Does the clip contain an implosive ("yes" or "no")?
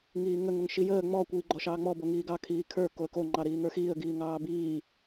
no